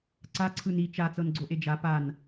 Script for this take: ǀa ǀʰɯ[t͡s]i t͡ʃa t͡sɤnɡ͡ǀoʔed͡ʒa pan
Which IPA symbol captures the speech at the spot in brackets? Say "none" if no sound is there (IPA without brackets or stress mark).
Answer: n